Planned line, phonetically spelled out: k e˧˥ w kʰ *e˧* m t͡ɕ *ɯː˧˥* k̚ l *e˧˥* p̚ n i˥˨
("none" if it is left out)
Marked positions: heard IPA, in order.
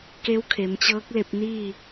e˩˧, ɤː˧˥, e˧

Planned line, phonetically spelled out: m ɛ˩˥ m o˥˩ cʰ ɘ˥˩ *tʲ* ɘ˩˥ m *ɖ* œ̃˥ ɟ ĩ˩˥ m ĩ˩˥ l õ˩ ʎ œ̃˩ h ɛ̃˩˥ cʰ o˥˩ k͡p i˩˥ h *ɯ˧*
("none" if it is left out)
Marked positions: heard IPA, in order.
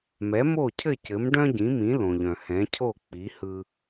c, ɖ, ɯ˧

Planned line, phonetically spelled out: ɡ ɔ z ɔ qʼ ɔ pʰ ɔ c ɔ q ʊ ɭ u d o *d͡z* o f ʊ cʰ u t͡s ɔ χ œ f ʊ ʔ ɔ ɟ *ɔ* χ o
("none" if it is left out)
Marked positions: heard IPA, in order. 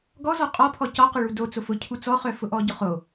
t͡s, ʊ

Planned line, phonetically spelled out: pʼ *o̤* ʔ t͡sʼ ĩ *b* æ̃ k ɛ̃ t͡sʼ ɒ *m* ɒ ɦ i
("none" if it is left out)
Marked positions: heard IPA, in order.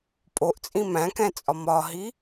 o, m, m

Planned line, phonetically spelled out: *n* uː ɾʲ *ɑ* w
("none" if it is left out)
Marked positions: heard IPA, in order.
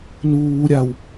n, a

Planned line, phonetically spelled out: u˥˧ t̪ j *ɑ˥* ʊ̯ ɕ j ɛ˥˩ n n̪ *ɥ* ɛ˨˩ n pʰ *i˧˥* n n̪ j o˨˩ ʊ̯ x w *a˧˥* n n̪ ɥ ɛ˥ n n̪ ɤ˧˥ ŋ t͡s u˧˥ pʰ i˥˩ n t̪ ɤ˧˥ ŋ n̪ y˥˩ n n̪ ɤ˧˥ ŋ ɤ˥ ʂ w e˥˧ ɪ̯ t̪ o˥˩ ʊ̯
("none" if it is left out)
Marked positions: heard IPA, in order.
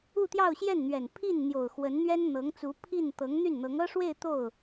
ɑ˥˧, ɥ, i˥˩, ə˧˥

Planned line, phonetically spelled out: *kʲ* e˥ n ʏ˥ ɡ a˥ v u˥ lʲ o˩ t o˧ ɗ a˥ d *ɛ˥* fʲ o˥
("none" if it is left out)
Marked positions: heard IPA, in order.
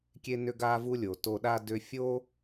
kʲ, ʏ˥

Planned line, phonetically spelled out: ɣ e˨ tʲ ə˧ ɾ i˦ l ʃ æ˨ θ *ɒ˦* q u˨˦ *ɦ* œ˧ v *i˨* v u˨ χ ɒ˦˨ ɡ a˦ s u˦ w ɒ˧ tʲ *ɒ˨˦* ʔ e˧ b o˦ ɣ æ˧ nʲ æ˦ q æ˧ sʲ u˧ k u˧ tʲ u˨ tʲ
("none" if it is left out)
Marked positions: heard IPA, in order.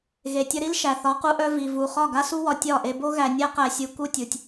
ɒ˨˦, ʔ, i˨, ɒ˦˨

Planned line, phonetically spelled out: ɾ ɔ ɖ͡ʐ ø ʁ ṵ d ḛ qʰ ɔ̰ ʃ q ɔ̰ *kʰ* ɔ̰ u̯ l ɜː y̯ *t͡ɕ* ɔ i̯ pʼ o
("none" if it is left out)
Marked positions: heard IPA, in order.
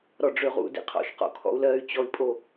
kʰ, t͡ɕ

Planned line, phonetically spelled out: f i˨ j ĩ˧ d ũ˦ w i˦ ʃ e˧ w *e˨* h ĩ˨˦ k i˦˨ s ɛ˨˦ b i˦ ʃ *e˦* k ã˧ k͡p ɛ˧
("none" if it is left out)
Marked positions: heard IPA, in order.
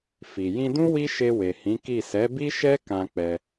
e˨, ɛ˦

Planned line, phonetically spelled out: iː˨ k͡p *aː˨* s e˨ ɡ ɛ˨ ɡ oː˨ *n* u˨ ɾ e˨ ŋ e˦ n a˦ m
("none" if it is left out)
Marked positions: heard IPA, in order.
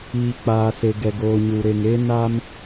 aː˨, ɲ

